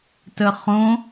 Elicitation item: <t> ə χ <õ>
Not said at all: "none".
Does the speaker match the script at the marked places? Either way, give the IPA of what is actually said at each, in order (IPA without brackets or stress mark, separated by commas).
t, õ